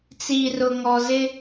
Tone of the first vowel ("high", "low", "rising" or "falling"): low